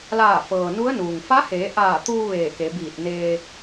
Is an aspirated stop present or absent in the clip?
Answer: absent